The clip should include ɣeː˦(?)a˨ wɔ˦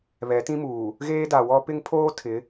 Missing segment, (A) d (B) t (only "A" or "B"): A